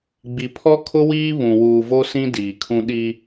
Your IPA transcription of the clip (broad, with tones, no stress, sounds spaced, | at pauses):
ɡ͡b i˨ pʰ ɔ˦ kʰ ʊ˦ w iː˦ β ũ˨ w uː˨ v o˦ s ĩ˦ d iː˨ kʰ ũ˦ ɗ i˦